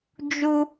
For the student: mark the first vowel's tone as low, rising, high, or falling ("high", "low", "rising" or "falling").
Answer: high